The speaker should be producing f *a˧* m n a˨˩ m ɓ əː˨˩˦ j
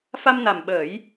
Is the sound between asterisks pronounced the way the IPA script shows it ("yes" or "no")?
yes